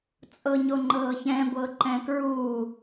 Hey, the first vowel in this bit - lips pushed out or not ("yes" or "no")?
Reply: no